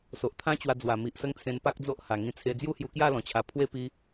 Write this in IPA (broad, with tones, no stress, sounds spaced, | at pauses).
s o˨ ʔ t̪ʰ ã˦ t͡ɕ w a˧ d͡z w a˨˩ m i˨ ʔ s ə˦ ŋ t͡sʰ ẽ˧ n p a˦ k̚ d͡z o˦ ʔ h a˨˩ ŋ ĩ˧ t͡sʰ e˧ d͡z j u˦ h j u˧ k j a˥˧ l ɔ̃˨˩ t͡ɕʰ a˨˩ pʰ w e˥˧ p i˦